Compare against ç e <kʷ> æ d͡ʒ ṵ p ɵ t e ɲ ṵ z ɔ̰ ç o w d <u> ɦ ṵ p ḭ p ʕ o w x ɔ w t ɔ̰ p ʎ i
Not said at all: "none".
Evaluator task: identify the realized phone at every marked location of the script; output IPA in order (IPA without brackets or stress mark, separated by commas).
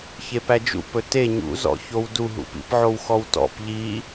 p, u